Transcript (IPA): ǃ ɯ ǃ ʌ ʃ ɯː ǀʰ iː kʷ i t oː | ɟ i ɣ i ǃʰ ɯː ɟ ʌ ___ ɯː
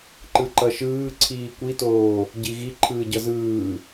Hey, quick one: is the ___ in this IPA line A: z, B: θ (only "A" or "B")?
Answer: A